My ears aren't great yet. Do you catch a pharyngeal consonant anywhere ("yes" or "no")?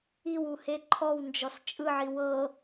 yes